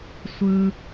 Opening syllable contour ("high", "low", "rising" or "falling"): low